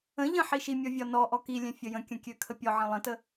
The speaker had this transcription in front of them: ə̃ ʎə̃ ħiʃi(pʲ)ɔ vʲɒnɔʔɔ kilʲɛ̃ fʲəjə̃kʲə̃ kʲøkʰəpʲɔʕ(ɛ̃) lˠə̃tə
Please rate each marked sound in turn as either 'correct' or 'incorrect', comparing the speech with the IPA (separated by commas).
incorrect, incorrect